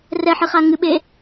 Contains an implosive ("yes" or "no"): yes